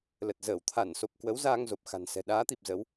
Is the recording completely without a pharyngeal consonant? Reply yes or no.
yes